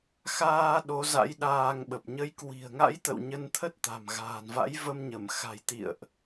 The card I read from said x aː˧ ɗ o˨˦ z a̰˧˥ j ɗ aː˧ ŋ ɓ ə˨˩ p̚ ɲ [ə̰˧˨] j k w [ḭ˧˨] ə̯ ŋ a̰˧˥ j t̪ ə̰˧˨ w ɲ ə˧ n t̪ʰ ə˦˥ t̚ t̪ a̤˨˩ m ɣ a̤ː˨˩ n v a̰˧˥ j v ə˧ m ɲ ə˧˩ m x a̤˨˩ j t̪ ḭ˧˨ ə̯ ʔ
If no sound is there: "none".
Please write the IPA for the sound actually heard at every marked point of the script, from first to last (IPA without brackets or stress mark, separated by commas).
ə˨˦, i̤˨˩